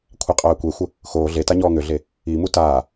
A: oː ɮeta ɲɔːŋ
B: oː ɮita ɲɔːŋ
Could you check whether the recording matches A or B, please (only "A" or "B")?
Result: A